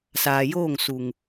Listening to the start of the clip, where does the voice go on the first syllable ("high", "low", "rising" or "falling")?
low